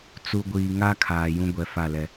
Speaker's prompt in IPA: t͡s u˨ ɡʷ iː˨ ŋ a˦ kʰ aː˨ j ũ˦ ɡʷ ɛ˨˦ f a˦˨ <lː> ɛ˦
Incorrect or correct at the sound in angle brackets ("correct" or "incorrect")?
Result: incorrect